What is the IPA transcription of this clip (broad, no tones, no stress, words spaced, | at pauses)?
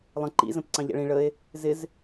lˠə̃ ǃḭzə̃p ǀɑ̃ʎæ̰ɭĩ ɭəe̯ | zɪz